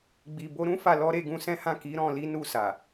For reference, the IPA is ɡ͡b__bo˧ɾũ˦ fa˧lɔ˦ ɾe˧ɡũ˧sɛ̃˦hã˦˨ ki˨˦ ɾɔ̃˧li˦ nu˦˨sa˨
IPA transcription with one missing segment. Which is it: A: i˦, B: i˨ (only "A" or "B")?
B